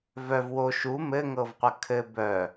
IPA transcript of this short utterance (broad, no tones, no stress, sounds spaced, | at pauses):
v œ v w o ʃ u m ɘ ŋ ɤ v qʷ ɐ kʰ ɘ b œ